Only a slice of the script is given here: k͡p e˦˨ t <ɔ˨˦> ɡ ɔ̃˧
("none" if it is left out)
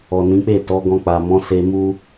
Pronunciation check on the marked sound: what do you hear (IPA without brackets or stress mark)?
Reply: ɔ˨˦